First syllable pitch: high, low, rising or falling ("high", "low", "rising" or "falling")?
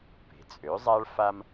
rising